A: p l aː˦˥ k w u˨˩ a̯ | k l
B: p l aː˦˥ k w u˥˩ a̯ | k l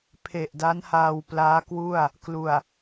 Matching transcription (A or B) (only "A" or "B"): B